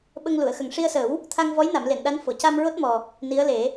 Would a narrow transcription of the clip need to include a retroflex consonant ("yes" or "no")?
yes